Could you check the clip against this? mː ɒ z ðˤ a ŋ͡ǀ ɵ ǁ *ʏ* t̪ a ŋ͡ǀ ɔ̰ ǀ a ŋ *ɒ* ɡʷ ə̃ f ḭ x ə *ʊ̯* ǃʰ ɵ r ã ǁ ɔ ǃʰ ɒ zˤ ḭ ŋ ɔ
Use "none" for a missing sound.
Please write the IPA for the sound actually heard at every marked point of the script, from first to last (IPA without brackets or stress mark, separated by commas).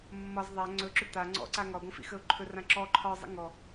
ʏ, ɒ, ʊ̯